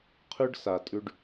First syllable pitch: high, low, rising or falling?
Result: high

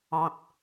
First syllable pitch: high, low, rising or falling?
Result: low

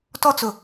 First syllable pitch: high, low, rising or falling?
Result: high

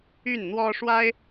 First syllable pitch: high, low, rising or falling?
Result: falling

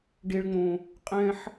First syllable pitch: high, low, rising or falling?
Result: high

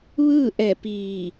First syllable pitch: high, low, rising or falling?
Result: falling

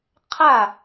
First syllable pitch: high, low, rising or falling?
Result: falling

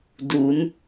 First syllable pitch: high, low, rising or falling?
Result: rising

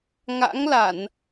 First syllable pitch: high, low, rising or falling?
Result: rising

